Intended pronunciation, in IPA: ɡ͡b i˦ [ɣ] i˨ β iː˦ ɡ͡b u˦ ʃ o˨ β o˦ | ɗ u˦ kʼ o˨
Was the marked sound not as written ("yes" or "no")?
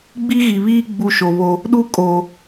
no